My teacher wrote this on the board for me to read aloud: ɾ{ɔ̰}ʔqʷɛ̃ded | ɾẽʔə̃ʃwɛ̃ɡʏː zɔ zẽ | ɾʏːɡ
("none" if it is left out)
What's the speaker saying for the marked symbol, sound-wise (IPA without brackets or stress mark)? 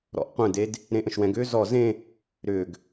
ɔ̰